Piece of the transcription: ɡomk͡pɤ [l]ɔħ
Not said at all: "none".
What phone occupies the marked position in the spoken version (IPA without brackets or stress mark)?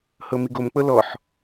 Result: l